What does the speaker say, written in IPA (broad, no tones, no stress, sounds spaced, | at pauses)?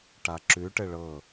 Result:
ʈ a ǁ ʉ ʈ ɘ ɭ ɤ